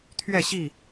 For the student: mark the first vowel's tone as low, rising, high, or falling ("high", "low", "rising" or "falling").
falling